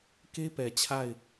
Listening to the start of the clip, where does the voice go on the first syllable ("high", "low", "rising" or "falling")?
high